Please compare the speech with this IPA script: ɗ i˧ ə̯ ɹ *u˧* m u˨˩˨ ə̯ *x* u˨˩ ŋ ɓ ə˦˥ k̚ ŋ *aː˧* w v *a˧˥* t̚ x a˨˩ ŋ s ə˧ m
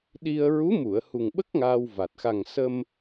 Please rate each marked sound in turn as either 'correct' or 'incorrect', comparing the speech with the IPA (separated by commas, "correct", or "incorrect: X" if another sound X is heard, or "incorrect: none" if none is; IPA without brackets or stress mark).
incorrect: u˧˥, incorrect: h, correct, incorrect: a˨˩